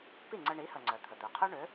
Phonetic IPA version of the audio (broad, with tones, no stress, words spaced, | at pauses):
pi˥˩ŋ͡ǀə˧ɳi˩˥hə˩ ŋ͡ǀœ˩t̪ʰə˩ d̪œ˩qʰœ˥ɳø˩˥